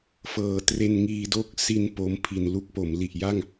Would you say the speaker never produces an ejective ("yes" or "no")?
yes